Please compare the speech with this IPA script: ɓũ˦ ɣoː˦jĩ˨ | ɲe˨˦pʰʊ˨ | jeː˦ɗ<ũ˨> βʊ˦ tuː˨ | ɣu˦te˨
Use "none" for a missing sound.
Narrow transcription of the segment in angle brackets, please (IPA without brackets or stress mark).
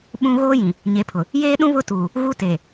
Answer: ũ˦